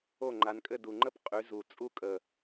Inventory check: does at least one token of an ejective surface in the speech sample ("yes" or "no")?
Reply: yes